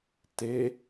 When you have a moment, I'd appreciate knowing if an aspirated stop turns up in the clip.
no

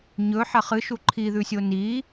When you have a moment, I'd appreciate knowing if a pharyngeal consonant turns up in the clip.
yes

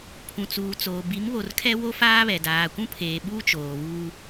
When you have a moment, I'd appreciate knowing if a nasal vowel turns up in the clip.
yes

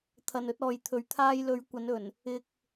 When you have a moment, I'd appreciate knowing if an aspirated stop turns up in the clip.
yes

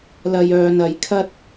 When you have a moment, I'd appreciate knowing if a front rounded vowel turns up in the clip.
yes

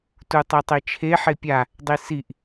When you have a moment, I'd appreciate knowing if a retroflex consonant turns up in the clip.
no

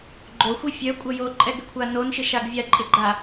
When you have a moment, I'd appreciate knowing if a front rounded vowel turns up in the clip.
yes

